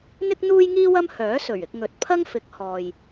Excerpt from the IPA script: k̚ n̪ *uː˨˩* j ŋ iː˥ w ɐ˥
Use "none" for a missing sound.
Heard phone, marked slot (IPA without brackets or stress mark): uː˥